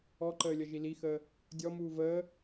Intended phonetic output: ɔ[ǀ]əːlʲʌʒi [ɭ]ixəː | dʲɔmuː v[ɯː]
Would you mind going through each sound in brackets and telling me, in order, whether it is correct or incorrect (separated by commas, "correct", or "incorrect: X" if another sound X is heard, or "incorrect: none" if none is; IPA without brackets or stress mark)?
incorrect: ǃ, incorrect: l, incorrect: əː